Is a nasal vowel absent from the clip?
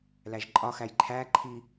yes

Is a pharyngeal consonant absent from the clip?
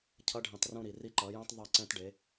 yes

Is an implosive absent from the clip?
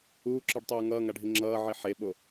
no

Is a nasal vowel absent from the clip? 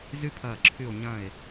no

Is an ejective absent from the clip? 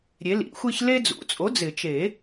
no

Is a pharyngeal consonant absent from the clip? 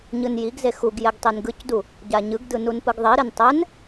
yes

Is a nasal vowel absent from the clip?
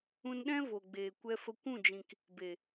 no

